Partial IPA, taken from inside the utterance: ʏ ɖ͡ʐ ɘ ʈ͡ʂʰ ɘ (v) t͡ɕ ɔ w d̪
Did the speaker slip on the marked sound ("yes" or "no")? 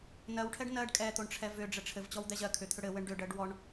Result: no